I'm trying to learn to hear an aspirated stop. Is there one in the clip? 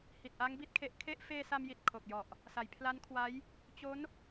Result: yes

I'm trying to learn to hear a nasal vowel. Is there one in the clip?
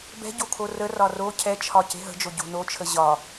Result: no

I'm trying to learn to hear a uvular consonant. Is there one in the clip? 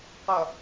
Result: yes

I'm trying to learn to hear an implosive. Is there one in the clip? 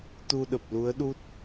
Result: yes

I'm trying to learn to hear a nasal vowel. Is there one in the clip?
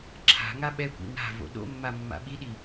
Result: no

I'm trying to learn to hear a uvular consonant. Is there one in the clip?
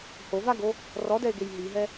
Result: no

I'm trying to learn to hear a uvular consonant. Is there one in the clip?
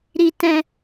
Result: no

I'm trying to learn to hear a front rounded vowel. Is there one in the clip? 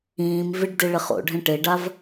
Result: no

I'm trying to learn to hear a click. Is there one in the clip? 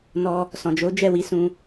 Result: no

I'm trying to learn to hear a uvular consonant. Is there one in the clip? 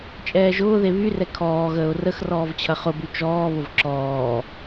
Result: yes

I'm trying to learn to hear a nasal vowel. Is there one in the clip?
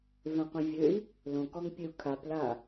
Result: yes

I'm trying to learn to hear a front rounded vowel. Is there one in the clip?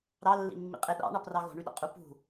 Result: yes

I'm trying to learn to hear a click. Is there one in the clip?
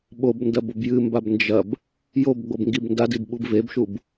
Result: no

